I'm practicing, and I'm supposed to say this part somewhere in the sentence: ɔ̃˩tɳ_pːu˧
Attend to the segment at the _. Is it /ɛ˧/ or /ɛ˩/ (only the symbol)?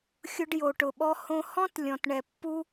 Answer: ɛ˩